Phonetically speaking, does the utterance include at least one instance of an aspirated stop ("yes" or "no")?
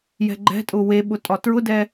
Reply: no